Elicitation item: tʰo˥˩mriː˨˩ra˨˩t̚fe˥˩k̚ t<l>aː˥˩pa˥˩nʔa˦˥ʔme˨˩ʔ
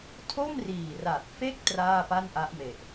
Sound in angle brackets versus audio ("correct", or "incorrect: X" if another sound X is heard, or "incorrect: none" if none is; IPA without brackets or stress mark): incorrect: r